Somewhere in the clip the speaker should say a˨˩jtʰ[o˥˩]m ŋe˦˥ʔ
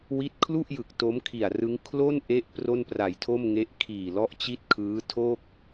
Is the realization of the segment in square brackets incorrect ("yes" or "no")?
no